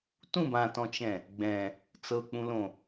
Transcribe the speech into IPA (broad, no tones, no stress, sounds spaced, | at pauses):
t ũ b ã t ɔ̃ t͡ʃ ɛ̃ | ɡ͡b ɛ̃ | t͡s ɤ k͡p ũ l õ